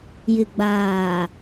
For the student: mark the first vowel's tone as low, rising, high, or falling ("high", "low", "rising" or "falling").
low